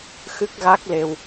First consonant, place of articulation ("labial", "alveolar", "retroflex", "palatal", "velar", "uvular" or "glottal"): velar